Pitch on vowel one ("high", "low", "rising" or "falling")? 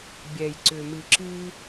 low